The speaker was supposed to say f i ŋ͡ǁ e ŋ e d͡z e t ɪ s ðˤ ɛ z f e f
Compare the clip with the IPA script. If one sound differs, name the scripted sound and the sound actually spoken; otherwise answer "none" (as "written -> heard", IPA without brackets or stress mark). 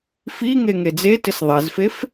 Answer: ŋ͡ǁ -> ŋ